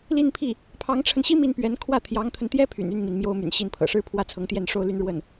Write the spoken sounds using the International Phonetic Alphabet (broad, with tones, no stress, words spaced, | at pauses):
li˥˧npʰi˥˩ | pʰɑ˧˥ŋʈ͡ʂʰə˧nɕi˥ mi˥˩npɥɛ˧˥n kʰwä˥˩t̪ʰjɑ˧˥ŋt̪ʰə˧nt̪jɛ˥ pʰy̰˨˩ny˥˩nmi˩n mjo˥ʊ̯my̰˨˩nɕi˥˩npʰɤ̰˨˩ ʂɻ̩˥pʰwä˥˩t͡sʰɤ˧˥ŋt̪jɛ˥˩n ʂo˥ʊ̯ly˥nɻwə˥˩n